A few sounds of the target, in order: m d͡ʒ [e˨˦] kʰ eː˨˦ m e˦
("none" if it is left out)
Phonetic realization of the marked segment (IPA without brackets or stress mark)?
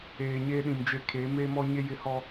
e˨